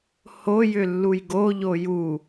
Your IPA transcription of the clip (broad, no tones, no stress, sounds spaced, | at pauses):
h o j ʏ lː u j ɡ o ʎ o j u